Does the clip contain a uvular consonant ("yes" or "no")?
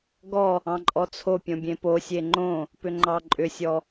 no